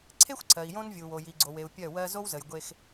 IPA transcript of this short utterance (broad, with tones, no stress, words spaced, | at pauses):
ǀʰe˦xʷǀɜ˨i̯ jõ˦nvʲu˨wo˨ ji˨ɡ͡ǀo˨we˨u̯ pʲɜ˦˨wɜ˦ zo˦wzə˨j ɡʷe˦x